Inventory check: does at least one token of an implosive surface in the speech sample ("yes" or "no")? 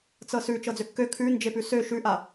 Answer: no